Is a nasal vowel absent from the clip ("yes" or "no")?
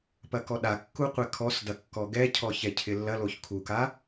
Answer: yes